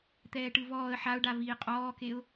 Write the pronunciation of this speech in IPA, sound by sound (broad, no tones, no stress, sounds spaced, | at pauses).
t̪ ɛː ʈ ɯ v ɔː ə̯ ħ a ʊ̯ ɖ a v iː qʼ ɔː k e ʊ̯